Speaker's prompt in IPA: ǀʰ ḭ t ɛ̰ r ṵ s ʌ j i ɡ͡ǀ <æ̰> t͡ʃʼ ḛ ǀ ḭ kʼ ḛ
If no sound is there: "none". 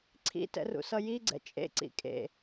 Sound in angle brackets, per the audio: ɛ̰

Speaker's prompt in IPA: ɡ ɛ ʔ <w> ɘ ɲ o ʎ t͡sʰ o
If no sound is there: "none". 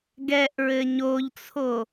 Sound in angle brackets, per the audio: ɹ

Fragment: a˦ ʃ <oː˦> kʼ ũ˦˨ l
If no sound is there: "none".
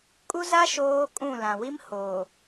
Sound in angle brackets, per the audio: oː˦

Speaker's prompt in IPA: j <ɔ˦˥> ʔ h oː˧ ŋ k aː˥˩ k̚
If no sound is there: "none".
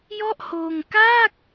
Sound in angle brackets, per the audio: ɔ˥˩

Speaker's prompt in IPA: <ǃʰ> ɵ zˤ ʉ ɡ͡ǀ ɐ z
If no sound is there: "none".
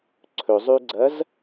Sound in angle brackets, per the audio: ǀʰ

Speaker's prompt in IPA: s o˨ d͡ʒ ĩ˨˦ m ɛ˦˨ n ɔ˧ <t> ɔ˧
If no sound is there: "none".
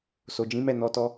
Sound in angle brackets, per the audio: t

